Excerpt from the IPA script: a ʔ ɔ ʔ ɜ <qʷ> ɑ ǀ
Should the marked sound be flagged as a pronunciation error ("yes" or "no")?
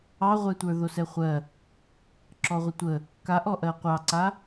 no